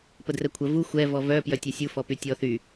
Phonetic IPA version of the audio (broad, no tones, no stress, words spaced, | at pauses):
pədrɛkʷʰə vu xʷɛ vɔvœ pjœtʲɛsʲu fɔpytʲɔ θy